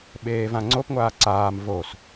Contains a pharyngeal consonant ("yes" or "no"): no